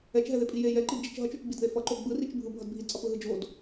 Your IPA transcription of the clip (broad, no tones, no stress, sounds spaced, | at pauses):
ɛ t͡ʃ ɦ ɛ ð e pʼ i j e j ɛ ǃ i d d͡ʒ i t͡ʃ ɦ ʌ t͡ʃ o t͡ʃ ɡ͡b i d ð e f ʌ ǃ o ɡ͡b ɯ r i t͡ʃ bʱ ɯ bʱ ʌ d bʱ i d t͡sʼ ʌ p ɯ ɦ ɯ d͡ʒ o d